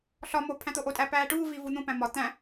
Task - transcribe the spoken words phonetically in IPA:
ɬ ɒ m o pʰ æ̃ t̪ o ʔ o tʼ æ p æː ʈ uː v i v u n̪ ũ p æ̃ m ɒ t̪ æ̃

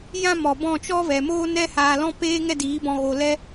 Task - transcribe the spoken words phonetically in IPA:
j ã˦ m ɔ˨ b ɔ̃˦˨ t͡ʃ ɔ˦ v ɛ˨ m oː˦ n ɛ˧ h aː˨ l ɔ̃˧ p eː˧ ŋ ɛ˦ d iː˨˦ b ɔ̃˧ ɣ o˨ l ɛ˧

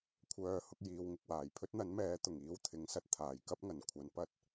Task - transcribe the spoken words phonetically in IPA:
kʷʰ œː˨˧ h ʊ˧ k̚ j iː˨ w ŋ ɪ˨ k̚ w aː˨˩ j pʰ ɵ˥ t̚ n̪ ɐ˨˥ n m ɛː˨˧ t̪ ʊ˨˩ ŋ iː˧ w t̪ʰ ɪ˨˥ ŋ s ɐ˧ t̚ t̪ʰ aː˨˩ j k ɐ˥ p̚ ŋ ɐ˨˩ n kʷʰ ɐ˨˥ n p ɐ˥ t̚

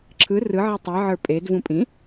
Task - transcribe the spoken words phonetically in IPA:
ǁʰ ɯ r ɯ ʕ ɛ tˤ i ʕ ə˞ pʼ e d v ũ pʼ ĩ

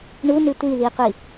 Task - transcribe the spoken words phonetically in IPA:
ɳ u n ʉ tʷ i ð i qʷ i

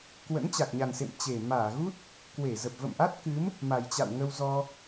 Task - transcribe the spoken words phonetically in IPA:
k w ə̰˧˥ n t͡ɕ a˨˩ k̚ ɲ a˨˩ n s ḛ˧˨ m t͡ɕ e˨˩ m aː˧˩ ɣ u˦˥ t̚ | k w e˧˩ z ə˨˩ p̚ v ə̰˧˨ m ʔ a˦˥ t̚ k ɨ˨˦ m | m a˨˩ j t͡ɕ a̰˧˨ w ŋ ə˧ w z ɔ˧

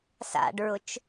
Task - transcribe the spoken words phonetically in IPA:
s a̰ ɖ ɹ ʊ t͡ʃ

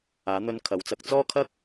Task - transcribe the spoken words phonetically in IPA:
aː˨˥ n̪ ɵ˧ n kʰ ɐ˨˥ w t͡s ɐ˧ k̚ t͡s ɔː˥ kʰ ɐ˥ k̚

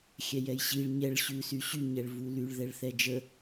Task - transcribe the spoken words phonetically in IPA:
xʲ ɛ j ɛ j ɕ i ɭ ɲ ɛ ɭ ɕ ʉ s y ɕ y ɲ ɛ ɭ v u l y ɭ ð ɛ ɭ θ ɛ d͡ʒ ə

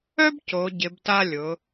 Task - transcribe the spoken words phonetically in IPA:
œ˥ b c o˩˧ ɟ ɪ˩˧ b t a˧ lʲ ʊ˩˧

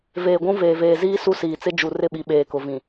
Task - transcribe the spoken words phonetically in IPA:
v eː˨ ɡʷ ũ˦ v eː˨ v eː˨ z iː˦ s u˦ s iː˨ t͡s ɪ˦ d͡ʒ u˨ r ɪ˦˨ ɓ i˨ ɓ eː˨ k ʊ˨ v ĩ˨

